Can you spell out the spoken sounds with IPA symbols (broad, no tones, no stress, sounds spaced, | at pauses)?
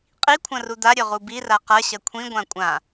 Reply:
qʼ i kʷʰ ɐ̃ r u d̪ a ɾʲ ø ʁ u b i r a q ɐ ɕ ɐ kʷʰ ĩ ɡʷ ã kʷʼ ã